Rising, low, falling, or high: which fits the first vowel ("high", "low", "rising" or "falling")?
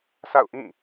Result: falling